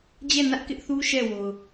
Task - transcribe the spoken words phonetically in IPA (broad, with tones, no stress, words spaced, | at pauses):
d͡ʑɛ˦˨nä˦ʔkɪ˦ʔθu˦ ʃɛ˦˨wo˨ʊ̯